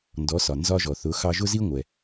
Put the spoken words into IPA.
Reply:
n d ɔ˩˥ s ɒ˩ n z ɒ˧ ʒ ɔ˩ θ ʊ˩˥ x ɑ˧ ʒ ʊ˥ z i˥ ŋʷ ɛ˩

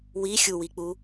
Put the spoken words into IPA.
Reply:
w i xʲ u w i k͡p u

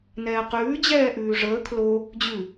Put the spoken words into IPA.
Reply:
n ɛː q ʉː d͡ʑ ɛː ʔ ʉː ʐ əː kʰ l o | d͡ʑ ʉ

